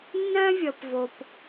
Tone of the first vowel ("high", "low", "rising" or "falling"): high